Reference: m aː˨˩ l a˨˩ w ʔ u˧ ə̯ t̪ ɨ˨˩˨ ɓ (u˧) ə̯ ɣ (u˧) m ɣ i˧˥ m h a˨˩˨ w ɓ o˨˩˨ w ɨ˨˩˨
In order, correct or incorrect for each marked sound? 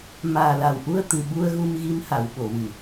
correct, correct

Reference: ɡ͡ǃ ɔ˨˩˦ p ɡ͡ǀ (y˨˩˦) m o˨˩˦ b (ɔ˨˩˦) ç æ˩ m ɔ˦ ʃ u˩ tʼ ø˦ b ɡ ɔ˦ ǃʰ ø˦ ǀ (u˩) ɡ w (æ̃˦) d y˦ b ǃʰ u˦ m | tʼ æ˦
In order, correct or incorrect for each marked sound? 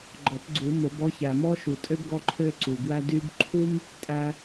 incorrect: u˨˩˦, incorrect: ɔ˦, correct, incorrect: æ˦

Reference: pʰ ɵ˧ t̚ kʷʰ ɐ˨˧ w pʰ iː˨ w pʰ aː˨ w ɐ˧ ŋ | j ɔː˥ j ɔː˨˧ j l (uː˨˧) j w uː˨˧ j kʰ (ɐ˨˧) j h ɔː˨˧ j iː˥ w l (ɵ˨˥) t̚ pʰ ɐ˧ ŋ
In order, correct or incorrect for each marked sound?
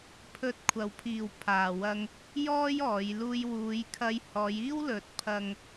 incorrect: uː˧, incorrect: ɐ˧, correct

